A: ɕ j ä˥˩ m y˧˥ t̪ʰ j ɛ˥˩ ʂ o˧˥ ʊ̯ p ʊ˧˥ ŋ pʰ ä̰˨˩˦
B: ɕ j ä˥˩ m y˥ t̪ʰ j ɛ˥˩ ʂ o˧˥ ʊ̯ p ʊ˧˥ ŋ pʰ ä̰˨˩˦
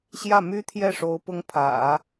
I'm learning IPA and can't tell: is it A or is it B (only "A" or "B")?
B